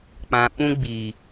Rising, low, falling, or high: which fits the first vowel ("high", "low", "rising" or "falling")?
low